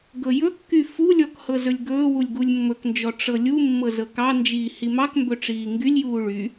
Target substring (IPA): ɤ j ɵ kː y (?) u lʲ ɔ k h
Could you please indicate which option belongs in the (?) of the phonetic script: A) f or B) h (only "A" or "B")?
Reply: A